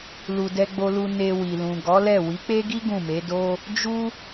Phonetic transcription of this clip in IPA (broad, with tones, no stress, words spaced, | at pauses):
lu˧ dɛ˧ɡ͡bo˧lu˧ ne˧ wi˨lũ˨ɡɔ˨˦lɛ˦˨ wi˨˦k͡pe˦ɡi˦ ɡũ˦˨me˨˦do˦ | d͡ʒu˦